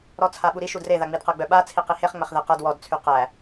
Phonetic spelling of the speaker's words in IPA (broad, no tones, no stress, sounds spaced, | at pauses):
ɾ ɔ t͡sʰ a ɓ u ɾ i ʃ u d r e ð a ŋ͡m i d q ɤ ɡ͡b œ ɓ a t͡sʰ i q i h e χ ŋ͡m æ χ ð ɛ q a d w ɔ d t͡sʰ y q æ